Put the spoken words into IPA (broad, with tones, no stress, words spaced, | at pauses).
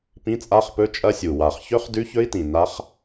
pĩ˧˥˧t͡sʼa˧˥˧χpɵ˧˥˧ t͡ʃʼɐ˦˥sʲu˨˩ wa˨˩χçɵ˦˥χ dʉ˦˥çɵ˦˥i̯tĩ˨˩ na˦˥χ